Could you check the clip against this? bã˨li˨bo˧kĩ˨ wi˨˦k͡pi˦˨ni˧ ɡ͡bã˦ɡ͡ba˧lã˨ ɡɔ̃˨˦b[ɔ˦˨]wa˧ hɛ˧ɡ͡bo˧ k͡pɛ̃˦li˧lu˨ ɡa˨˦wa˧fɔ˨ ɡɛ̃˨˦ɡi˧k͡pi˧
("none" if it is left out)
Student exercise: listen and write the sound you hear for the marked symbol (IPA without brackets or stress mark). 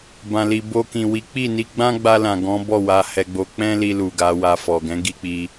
ɔ˦˨